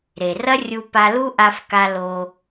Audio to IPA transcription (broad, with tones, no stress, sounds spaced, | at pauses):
ɾ e˩ r ɐ˥ rʲ u˧ p a˧ l u˥ ʔ a˧ f k a˧ l o˧